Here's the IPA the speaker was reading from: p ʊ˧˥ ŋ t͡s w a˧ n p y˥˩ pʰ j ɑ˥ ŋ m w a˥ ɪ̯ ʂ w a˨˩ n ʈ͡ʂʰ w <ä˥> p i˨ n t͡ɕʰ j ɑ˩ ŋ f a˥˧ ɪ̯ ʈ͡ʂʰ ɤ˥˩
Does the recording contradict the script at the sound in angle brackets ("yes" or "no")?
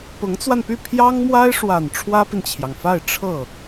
no